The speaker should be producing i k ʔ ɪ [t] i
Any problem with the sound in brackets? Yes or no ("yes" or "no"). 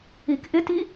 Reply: no